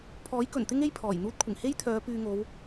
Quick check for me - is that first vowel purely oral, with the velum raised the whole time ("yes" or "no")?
yes